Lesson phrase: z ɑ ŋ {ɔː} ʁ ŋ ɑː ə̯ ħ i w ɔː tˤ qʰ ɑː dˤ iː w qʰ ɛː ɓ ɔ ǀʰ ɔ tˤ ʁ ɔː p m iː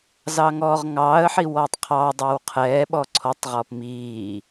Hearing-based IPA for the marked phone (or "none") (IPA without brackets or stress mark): ɔː